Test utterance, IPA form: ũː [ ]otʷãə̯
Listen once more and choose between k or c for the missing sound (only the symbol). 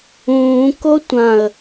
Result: k